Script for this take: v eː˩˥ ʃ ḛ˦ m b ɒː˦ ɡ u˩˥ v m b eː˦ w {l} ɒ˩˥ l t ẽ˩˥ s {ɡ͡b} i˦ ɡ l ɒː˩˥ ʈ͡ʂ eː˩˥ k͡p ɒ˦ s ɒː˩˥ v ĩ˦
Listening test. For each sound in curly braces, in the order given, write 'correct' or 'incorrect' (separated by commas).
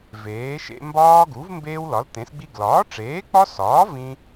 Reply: correct, correct